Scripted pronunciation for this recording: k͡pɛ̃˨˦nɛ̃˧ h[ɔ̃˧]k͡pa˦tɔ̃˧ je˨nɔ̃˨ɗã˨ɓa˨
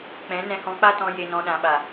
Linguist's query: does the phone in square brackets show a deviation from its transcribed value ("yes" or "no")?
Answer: no